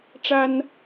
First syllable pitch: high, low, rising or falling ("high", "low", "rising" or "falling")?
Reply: high